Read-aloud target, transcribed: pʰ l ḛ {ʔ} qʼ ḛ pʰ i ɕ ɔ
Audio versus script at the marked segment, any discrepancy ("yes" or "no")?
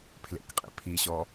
yes